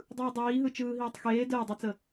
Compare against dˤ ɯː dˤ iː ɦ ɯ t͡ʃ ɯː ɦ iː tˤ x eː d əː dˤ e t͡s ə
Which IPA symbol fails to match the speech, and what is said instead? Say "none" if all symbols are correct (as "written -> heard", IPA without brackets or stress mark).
none